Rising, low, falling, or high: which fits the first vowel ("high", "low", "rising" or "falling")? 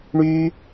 high